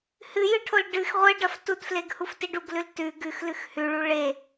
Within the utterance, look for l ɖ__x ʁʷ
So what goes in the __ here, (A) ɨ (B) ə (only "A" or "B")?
A